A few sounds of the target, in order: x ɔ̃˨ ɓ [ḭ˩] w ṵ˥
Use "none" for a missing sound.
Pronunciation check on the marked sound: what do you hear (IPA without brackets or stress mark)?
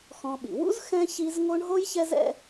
ḭ˩